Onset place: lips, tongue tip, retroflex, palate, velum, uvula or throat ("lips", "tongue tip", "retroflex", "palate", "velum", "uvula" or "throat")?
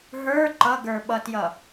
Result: throat